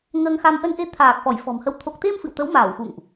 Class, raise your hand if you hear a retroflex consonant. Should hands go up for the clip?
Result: no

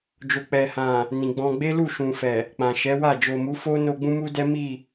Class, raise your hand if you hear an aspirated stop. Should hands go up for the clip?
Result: no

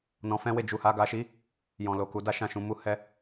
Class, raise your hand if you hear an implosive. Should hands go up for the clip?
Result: no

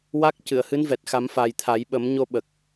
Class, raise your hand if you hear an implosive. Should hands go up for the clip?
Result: yes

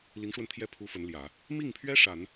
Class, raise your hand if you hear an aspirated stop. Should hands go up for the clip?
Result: yes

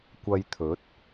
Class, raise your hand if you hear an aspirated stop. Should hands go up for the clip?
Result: yes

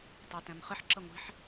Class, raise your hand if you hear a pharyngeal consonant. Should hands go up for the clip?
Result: yes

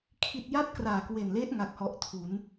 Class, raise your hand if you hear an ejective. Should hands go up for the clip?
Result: no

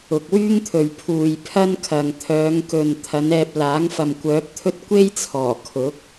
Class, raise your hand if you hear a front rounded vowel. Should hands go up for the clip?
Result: yes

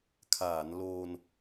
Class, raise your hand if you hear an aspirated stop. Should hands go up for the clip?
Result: yes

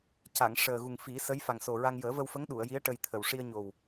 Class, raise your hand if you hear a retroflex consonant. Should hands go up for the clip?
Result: yes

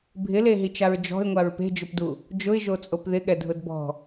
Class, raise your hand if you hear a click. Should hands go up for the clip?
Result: no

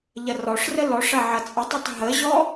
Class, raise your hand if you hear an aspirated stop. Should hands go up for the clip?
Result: no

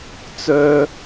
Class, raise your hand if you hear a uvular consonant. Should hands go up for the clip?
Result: no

